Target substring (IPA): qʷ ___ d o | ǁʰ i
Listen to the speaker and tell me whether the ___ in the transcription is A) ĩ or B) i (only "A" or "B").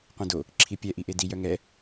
A